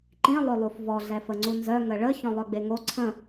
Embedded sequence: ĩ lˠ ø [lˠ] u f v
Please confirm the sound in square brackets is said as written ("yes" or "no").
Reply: yes